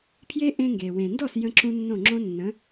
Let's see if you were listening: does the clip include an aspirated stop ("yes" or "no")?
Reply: yes